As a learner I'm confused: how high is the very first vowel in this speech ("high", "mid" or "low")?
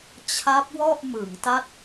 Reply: low